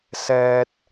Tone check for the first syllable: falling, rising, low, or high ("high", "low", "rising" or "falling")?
high